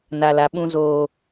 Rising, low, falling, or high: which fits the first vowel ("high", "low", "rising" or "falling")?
high